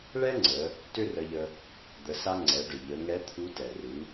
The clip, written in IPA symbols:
ɭ ɛ˥ ŋ͡ǀ ə˩˧ | t ʏ˥ r ə˧ ʎ ə˧ | d̪ ə˩˧ s a˧ ŋ͡ǀ ɛ˩˧ ɖ ʏ˩ ʎ ə˩˧ ŋ ɛ˧˥ t̪ʰ u˧˥ t ɛ˩ r ɨ˩˧

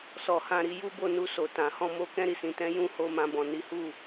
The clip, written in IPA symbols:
s ɔ˨ h ã˧ ɾ i˧ j u˦ b o˦˨ n u˧ s o˨ t ã˨ h ɔ̃˧ m o˧ k ɛ̃˧ ɾ i˨ s ĩ˨ t ɛ̃˨˦ j ũ˧ h o˧ m ã˧ b ɔ̃˨ n i˨˦ h u˦˨

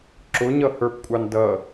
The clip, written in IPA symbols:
ǁ ʊ ɲ ʌ h ə˞ p kʷʼ ɑ n d ʌ

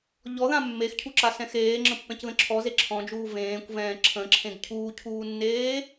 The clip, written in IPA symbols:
ʎ ɔ ð ã mː e x cʰ u ǁ a s ɛ̃ x eː ŋ͡ǁ ə̃ pː ɛ̃ c ð ə̃ ǁʰ ɔ z e ǁʰ ɔ̃ d͡ʒ uː v ẽː kʷ v ɛ̃ː ǁʰ ə̃ ǁʰ ẽ ɡ cʰ uː cʰ uː nː eː

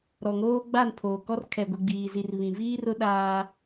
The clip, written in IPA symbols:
ɾ ɔ˨ ŋ oː˦ ɡ͡b a˦˨ n pʰ oː˨ k ɔ˦ r kʰ ɛ˨ ɡʷ e˨ ɡ͡b iː˨ z i˨ r β ĩ˨ v iː˦ r ʊ˦ ɗ aː˦

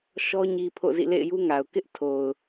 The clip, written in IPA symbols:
ʃ ɔ˦ ɲ i˦ pʰ o̰˦˨ z ḭ˦˨ l ḛ˦˨ ɪ̯ j u˦ ŋ a˨ ʊ̯ k ɪ˦ ʔ tʰ o˨ ʊ̯

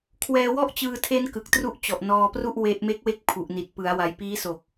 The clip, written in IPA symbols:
kʰ w ɛː˧ w ɔ˥˩ ʔ t͡ɕ ɯː˧ tʰ e˦˥ n k ɯ˨˩ k̚ t r u˥˩ ʔ t͡ɕ ɔ˨˩ ʔ n ɔː˧ p r u˥˩ ʔ w e˦˥ ʔ m e˦˥ k̚ w e˦˥ k̚ pʰ u˨˩ ʔ n i˨˩ t̚ p ɯ˩˦ a̯ w a˩˦ j p iː˦˥ s o˨˩ k̚

